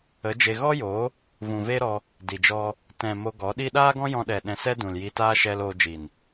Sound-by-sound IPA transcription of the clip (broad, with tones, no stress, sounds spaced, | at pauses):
ə˨˦ d͡ʒ e˧ ɣ ɔ˦ j oː˨˦ | v ũ˨ v e˦ ɾ ɔ˧ | d i˨ d͡ʒ ɔ˦ | t ɛ̃˨ m o˧ ɡ ɔ˨˦ ɗ i˦ ɗ aː˦ ɡ ɔ̃˦ j ɔ̃˧ ɗ ɛ˨ ɗ ɛ̃˧ s ɛ˦ d ũ˨ l j i˧ t aː˦ ʃ ɛ˧ l oː˧ d͡ʒ i˨ n